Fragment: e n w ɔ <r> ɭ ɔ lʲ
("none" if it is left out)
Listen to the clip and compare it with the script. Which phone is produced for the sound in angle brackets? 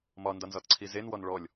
n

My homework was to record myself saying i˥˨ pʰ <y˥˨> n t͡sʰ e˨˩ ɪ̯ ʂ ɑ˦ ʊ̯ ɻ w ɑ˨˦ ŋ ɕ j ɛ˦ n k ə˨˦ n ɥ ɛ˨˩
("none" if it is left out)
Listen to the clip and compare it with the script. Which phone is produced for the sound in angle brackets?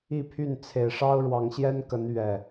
y˥˨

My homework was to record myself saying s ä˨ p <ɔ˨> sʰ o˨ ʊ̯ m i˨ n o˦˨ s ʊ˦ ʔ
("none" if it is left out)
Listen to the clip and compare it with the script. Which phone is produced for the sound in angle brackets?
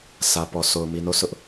ɔ˨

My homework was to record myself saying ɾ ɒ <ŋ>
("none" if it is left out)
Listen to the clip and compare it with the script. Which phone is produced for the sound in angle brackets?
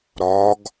ɡ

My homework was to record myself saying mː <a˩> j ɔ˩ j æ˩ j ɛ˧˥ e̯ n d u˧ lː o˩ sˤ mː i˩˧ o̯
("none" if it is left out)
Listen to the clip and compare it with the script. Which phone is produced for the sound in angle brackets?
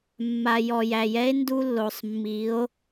a˩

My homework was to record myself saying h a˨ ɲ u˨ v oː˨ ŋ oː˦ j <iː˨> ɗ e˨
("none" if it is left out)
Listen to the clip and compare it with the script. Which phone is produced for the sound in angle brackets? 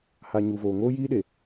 iː˦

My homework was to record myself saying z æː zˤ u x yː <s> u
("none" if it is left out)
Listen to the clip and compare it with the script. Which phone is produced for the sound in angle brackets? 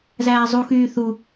θ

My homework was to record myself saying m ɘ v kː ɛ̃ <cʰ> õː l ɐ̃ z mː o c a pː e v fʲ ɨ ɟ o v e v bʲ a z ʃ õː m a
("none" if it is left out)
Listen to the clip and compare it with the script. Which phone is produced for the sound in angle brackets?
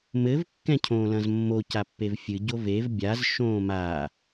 cʰ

